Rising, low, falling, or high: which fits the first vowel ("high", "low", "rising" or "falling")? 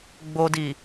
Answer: low